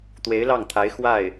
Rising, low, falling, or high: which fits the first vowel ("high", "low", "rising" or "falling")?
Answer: rising